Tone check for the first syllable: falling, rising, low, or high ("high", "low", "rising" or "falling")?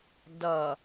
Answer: low